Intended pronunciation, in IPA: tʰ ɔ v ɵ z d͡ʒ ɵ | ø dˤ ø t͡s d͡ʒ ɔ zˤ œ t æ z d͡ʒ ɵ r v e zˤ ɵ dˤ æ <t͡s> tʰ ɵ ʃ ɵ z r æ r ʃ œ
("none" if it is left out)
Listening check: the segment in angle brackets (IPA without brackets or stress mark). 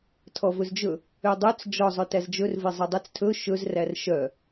t͡s